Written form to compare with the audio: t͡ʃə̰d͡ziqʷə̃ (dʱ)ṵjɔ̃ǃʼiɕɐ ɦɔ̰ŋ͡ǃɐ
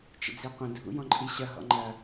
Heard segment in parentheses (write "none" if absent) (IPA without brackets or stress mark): dʱ